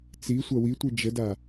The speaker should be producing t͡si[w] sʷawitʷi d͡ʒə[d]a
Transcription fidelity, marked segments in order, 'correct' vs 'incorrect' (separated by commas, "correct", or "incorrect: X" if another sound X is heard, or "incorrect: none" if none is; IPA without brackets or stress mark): incorrect: none, correct